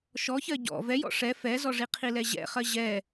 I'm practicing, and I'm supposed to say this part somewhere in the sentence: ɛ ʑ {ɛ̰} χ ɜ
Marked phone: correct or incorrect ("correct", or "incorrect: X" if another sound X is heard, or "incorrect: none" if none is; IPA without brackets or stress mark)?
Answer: correct